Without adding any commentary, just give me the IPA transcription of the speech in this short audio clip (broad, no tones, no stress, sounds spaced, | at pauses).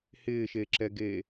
h ɪː ʃ e ǁ ɛ ɡ e